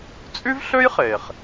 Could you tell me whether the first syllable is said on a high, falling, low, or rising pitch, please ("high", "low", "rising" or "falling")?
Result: high